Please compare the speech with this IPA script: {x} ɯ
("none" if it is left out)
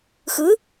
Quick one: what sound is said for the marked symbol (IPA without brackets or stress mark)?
x